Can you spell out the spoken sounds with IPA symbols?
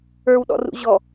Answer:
ə˞ w ɗ ɔ̰ r ṵ ʑ ɔ

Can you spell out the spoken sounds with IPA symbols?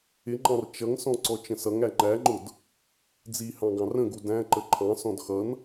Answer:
ɪ ŋ͡ǃ ɑ̃ r t͡ʃ ʌ ŋ s ɔ̃ ǀ ɔ t͡ʃ ə̃ s ʌ ŋ æ ŋ͡ǃ æ ŋ͡ǃ ʊ d | d͡z i h ɑ̃ ɡ ɑ̃ r ə̃ ɡ u d æ̃ ǃ ə ǃʰ ɑ̃ s ɔ̃ d x ʌ n

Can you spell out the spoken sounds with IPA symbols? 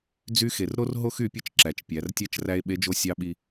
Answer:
d͡z y˧˥ x e˩ r ɾ o˥ r ɦ o˥ x y˧˥ pʲ ɯ˥ t͡ʃ ǁ æ˩˧ t͡ʃ pʲ æ˩˧ r tʲ æ˧˥ t͡ʃ r æ˧ e̯ ɓ e˧˥ d͡ʒ o˧˥ sʲ ɑ˧˥ ɓ i˧

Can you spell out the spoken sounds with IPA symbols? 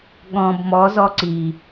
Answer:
ɠ ɔ̃ b m ɔ z ɔ ǀ i

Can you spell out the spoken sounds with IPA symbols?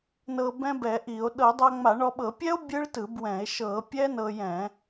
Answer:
n ɤ˧ b ɛ̃˦˥ b ɛ˧˩˧ ʔ i˧˩˧ o̯ ɗ ɤ˧˩˧ dˤ a˧ ŋ͡m a˧˩˧ ɳ ɔ˧ ɓ ɤ˧˩˧ pʲ ɛ˦˥ o̯ bʲ ɯ˦˥ ɭ t ɯ˧˩˧ b w ɛ̃˧˩˧ e̯ ʃ ɤ˧˩˧ pʲ ɛ˦˥ n ɤ˧ j ɛ̃˧˩˧

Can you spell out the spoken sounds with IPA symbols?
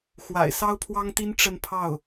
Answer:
x w a̰˨˩ ɪ̯ s ɑ˥ ʊ̯ pʰ w ɑ˥ ŋ t̪ i˥ n ʈ͡ʂ ə˥˧ n pʰ ɑ˥˩ ʊ̯

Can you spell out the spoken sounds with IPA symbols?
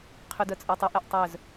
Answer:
qʰ y d œ t͡sʼ œ tˤ ə ʔ e ʔ tˤ œ z

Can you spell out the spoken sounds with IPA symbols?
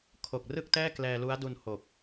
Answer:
kʰ o˨˩ k̚ r ɯ˥˩ k̚ t ɛː˥˩ k l ɛː˧ l u˦˥ a̯ d u˧ n h o˨˩ k̚

